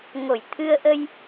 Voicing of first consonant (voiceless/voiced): voiced